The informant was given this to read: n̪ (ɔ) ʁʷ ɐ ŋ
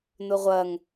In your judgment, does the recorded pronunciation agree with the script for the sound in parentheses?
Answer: no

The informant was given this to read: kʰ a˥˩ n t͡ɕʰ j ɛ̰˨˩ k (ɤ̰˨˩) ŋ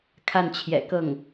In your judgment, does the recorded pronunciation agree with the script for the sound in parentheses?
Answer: no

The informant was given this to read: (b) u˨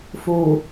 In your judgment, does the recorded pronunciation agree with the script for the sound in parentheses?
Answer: no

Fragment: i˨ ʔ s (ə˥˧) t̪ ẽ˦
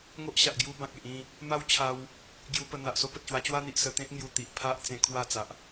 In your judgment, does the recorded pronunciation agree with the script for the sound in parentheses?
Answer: no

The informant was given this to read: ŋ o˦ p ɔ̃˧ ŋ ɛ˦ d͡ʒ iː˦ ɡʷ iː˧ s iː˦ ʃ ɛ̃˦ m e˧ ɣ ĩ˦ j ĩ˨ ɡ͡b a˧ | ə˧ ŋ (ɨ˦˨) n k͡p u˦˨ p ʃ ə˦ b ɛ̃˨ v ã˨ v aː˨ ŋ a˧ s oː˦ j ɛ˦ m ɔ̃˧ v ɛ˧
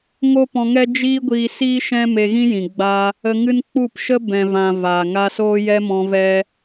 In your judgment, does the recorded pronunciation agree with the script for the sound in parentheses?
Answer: no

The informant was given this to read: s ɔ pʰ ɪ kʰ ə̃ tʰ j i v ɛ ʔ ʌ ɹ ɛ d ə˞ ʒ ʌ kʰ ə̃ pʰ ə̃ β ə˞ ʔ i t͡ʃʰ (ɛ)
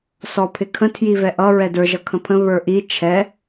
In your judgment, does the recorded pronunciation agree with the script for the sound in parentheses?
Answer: yes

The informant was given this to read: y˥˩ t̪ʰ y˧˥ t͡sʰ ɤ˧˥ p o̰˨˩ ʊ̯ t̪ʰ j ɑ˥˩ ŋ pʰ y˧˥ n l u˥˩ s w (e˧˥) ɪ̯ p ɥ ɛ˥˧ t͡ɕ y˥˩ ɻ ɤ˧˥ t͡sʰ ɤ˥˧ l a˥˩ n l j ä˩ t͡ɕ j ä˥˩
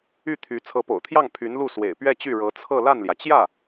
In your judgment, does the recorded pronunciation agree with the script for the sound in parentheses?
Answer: no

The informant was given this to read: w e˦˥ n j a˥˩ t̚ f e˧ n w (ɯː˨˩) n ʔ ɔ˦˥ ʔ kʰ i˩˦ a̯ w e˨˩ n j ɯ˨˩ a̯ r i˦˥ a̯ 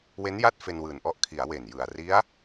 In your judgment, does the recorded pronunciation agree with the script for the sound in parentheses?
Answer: yes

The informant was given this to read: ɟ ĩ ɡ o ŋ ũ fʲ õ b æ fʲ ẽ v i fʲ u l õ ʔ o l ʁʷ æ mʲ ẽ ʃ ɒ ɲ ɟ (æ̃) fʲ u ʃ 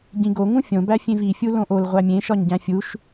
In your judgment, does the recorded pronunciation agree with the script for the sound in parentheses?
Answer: yes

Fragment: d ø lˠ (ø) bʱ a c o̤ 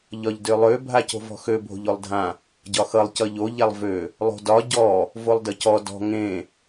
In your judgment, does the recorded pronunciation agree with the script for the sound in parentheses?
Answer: yes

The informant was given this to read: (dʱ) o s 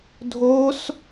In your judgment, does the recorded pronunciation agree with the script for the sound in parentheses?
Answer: yes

